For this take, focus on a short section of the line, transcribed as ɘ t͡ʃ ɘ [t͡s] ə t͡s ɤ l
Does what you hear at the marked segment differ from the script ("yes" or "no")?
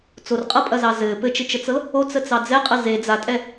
yes